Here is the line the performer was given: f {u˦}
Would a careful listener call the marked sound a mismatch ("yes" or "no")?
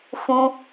yes